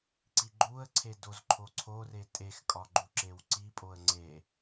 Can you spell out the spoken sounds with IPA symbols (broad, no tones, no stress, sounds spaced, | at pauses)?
ǀ i ɡ͡ǃ u ə̯ ǀʰ e d o z ǃʰ o ǀʰ o r e tʼ e x kʼ ɒ ɡ͡ǃ u ǁ e w ǀ i pʼ o ə̯ ŋ͡ǀ e